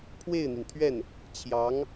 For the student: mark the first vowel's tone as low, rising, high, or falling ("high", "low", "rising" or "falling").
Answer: falling